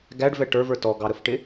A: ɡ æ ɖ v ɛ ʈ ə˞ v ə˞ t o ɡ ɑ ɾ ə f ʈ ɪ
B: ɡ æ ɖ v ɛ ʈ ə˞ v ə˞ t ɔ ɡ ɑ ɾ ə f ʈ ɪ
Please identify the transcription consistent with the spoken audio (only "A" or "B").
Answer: B